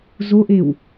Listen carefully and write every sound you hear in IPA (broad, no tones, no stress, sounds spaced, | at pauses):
z o ʔ e w